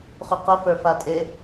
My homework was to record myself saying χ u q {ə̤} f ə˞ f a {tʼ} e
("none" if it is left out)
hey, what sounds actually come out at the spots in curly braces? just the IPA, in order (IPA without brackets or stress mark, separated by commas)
ə, tʼ